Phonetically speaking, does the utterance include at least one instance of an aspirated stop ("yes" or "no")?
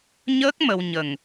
no